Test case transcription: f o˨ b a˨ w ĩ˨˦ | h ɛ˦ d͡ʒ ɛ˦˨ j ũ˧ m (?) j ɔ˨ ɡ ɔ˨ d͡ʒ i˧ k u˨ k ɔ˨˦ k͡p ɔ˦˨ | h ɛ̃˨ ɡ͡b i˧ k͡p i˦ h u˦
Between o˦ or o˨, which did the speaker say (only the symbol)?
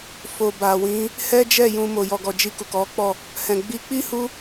o˨